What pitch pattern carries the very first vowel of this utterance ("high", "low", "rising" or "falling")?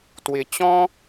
low